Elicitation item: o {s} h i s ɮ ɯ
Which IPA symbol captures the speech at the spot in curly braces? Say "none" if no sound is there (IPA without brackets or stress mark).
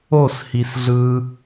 s